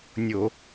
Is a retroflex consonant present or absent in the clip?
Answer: absent